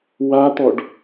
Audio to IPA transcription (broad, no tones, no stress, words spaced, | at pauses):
wat̪ɔɖ